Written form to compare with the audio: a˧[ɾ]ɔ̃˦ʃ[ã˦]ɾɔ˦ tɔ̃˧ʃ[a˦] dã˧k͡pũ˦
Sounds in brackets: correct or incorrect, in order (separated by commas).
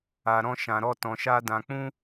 correct, incorrect, correct